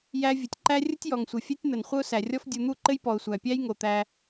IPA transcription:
jæ˦ vʲɘ˨tʲǃæ˦ rʲə˦tʲjɔ˨ŋsʷɘ˨ fʲɛ˦tʲn̪ə˨n χʷə˦ʊ̯sæ˨rʲɔ˦f dʲu˨n̪u˦˨ǃɘ˦j pɔ˨ʊ̯sʷæ˨pʲæ˦j ŋo˨t̪æ˧

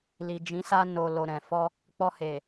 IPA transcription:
li˨d͡ʒĩ˨˦sa˧ no˨lo˨ ɾɛ̃˨fɔ˧ | k͡pɔ˧he˨

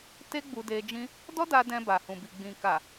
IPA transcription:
te˦ɡ͡bu˧de˧ d͡ʒĩ˦ | dɔ˦da˧ dɛ̃˧ba˨ hũ˨bi˨ ɡ͡bĩ˨ka˨

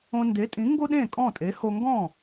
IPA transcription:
õ˧ nde˩˥tʼĩ˩˥ ŋɡo˥ɗẽ˥˩kʼɔ̃˥˩tʼe˩˥ ho˧ŋɡɔ̃˥˩

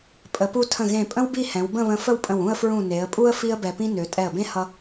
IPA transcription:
pʼə˩˧pu˧tʰə̃˧˩ ɣẽ˧˩pʼə̃˥wbi˥˧hɛ̃˩˧w bə̃˥˧βə̃˧ fə˥˧wpʼə̃˧˩w ũ˥˧ə̯fɹũ˧˩ ne˩˧ə̯pʼu˥ə̯ fi˥ə̯bɛ˧pĩ˥ nø˩˧ tʼɛ˧˩ə̯bẽ˥ hʌ˥

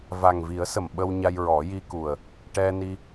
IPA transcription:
va˨˩ŋvi˨˩˦ə̯sə˨˩˨m ɓə˧wɲa˧j ɹɔ˨˩˦ji˧ku˨˩ə̯ | ʈɛ˧ni˧

